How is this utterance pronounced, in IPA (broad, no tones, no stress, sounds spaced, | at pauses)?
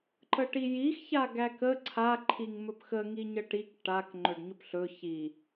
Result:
ǃ ə ʈ i j i x ç a ɡ æ k ə ǀʰ a ǃʰ i ŋ m ɵ p x ə ŋ i ɲ ə ʈ i k ʈ a k ŋ͡ǃ ɵ ɖ ɲ ɵ p ɬ ɵ ç i